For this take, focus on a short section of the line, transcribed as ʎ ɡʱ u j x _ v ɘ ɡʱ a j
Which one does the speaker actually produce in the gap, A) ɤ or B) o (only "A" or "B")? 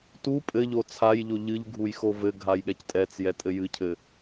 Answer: B